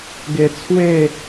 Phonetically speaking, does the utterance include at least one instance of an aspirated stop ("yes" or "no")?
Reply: yes